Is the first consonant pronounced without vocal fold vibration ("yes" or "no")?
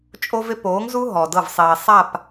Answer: yes